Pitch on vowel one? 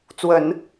low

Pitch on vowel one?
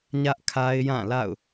high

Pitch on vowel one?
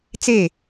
falling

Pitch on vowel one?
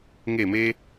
falling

